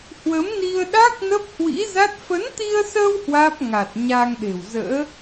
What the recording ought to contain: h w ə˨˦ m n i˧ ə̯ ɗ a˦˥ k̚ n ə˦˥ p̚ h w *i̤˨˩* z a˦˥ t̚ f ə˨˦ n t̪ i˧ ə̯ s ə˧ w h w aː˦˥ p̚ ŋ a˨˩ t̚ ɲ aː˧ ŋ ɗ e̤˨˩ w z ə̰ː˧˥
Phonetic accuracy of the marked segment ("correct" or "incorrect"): incorrect